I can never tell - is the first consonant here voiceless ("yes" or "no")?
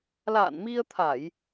no